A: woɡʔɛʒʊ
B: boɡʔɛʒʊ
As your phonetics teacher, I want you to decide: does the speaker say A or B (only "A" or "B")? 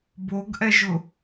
B